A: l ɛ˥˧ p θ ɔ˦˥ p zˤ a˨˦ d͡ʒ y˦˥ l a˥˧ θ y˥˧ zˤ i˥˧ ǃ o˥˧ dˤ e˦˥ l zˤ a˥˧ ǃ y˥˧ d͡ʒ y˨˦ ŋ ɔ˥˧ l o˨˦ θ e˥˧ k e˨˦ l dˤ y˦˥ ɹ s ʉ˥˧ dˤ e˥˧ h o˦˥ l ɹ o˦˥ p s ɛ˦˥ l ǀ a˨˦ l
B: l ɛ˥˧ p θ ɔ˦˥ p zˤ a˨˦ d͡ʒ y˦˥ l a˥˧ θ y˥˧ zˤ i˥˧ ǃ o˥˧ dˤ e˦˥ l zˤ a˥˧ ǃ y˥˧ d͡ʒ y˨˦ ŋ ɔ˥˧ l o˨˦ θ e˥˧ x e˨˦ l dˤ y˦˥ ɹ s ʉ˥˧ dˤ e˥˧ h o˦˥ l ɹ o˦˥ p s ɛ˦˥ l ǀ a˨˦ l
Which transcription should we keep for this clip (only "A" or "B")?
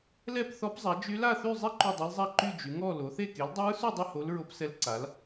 A